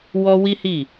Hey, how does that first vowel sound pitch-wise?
high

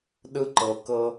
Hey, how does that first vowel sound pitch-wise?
high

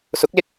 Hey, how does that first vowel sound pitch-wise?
rising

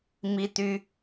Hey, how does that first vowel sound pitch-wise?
high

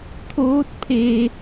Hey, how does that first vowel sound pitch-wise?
rising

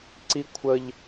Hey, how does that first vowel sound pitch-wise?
high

